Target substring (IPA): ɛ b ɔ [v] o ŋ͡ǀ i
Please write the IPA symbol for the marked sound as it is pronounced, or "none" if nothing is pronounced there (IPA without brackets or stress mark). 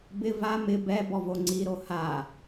v